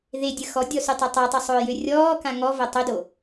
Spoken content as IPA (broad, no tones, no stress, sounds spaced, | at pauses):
ð e dʲ ə x ɔ dʲ ɔ s y tˤ ʏ tˤ a tˤ ʊ sˤ ʊː j ø rʲ ɔː k ã ŋ ɔ v o tˤ ʏ d o